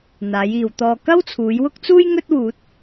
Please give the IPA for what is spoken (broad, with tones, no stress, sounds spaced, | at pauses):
n̪ aː˨˧ j iː˨ w t̪ ɔː˧ k ɐ˥ w t͡sʰ uː˨˧ j w ʊ˥ k̚ t͡s uː˥ j ŋ ɵ˥ t̚ w uː˨˥ t̚